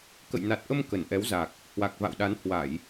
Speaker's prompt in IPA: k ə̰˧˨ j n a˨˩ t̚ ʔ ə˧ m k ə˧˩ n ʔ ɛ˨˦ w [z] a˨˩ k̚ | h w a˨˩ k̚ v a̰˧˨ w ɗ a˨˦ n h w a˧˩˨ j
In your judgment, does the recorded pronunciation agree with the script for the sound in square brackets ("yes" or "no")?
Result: yes